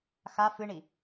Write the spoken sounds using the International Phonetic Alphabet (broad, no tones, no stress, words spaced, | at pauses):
xa fɨɳi